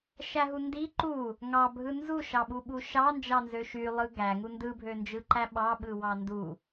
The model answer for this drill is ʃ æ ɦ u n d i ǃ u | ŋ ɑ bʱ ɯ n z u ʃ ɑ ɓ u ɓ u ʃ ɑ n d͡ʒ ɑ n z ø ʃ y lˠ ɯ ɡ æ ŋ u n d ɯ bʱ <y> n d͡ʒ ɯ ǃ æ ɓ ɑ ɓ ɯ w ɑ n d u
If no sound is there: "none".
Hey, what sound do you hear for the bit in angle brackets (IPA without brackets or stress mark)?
ø